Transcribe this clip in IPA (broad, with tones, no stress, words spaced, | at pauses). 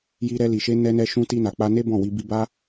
ji˧ɾɛ˧li˨ʃe˧ nɛ˧nɛ˧ʃũ˧ ti˧na˨k͡pa˧ne˦ bɔ̃˦˨wi˧ bi˧ba˦